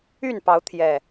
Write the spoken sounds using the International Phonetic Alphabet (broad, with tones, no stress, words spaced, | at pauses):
y˥˨npɑ˨˦ʊ̯ t̪ʰjɛ˨˩